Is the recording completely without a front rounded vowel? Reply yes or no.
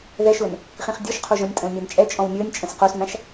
yes